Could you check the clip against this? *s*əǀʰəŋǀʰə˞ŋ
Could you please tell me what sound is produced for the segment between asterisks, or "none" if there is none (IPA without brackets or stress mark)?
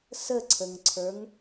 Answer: s